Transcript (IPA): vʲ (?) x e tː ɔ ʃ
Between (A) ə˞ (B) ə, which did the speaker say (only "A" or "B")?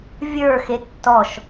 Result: A